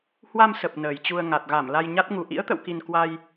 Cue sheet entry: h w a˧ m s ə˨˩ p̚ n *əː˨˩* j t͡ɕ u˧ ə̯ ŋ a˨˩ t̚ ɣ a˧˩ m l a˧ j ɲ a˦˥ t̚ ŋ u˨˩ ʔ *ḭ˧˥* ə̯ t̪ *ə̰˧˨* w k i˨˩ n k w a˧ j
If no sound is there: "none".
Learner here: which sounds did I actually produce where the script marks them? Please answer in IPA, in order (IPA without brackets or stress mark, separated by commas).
əː˨˩, ḭ˧˥, ə̰˧˨